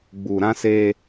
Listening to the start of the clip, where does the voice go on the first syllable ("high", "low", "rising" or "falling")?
low